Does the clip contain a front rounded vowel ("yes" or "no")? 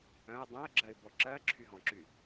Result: yes